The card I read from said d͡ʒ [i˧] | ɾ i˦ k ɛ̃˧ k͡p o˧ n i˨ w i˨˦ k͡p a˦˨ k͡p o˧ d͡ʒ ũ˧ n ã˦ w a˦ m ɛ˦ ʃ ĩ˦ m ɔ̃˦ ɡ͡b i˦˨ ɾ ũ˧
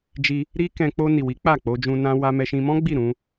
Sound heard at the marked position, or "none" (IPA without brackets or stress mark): i˧